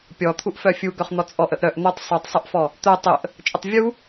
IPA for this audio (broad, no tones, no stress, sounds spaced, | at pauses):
pʲ ɔ t̪ʰ u ʔ f œ fʲ u ɡ œ χ n̪ ɔ t͡sʼ ɔ ʔ ə ʔ ɾ œ ʔ n̪ œ tˤ sˤ u tˤ sˤ œ ʔ f ɔ | t̪ œ tˤ ə ʔ | t͡ʃʼ ə tˤ vʲ u